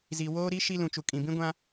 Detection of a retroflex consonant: absent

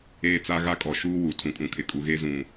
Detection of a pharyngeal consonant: absent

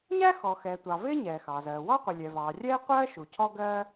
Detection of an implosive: absent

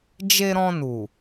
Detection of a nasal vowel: present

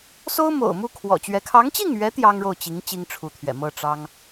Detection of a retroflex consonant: present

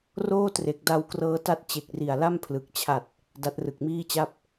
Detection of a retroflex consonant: absent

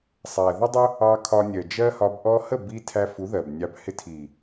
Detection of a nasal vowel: absent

